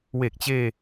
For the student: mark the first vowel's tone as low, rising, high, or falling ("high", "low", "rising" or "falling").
low